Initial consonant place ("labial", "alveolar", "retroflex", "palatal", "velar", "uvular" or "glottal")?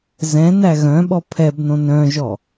alveolar